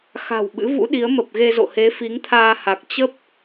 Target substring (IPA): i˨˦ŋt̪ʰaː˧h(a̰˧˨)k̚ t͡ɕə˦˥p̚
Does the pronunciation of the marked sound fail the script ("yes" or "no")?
yes